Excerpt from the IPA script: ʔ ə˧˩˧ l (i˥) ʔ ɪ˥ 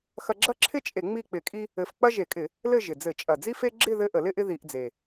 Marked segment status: incorrect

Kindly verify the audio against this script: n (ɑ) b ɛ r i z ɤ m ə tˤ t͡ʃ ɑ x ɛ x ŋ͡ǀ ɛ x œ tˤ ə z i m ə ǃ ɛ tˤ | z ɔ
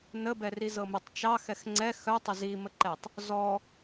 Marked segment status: incorrect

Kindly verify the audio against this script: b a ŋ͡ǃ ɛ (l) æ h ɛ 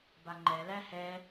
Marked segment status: correct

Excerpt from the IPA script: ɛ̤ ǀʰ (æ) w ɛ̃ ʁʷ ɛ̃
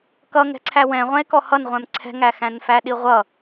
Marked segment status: correct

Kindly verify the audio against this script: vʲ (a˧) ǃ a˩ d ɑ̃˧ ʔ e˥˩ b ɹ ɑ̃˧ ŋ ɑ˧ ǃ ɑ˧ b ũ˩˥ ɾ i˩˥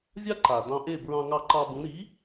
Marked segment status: incorrect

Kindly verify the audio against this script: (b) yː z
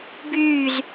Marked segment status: correct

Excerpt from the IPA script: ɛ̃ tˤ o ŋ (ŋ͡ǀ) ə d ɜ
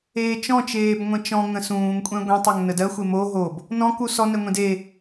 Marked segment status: incorrect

